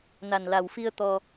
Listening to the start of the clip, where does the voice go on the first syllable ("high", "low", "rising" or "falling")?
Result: low